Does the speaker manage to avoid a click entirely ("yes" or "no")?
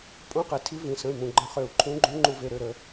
no